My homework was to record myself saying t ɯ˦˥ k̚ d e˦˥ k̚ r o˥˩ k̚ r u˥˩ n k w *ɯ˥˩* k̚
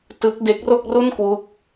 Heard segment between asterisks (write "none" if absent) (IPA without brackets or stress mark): u˥˩